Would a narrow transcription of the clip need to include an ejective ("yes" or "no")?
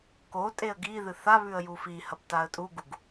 yes